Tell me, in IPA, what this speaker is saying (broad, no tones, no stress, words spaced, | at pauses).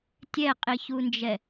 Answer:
tʲɛqʼiçund͡ʒɛ